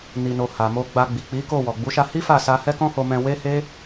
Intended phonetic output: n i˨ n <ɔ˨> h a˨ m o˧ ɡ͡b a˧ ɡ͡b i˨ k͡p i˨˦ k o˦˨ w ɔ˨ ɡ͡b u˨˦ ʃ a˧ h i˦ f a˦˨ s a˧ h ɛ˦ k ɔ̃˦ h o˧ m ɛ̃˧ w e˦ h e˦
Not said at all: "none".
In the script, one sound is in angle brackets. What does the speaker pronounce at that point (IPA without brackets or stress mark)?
o˨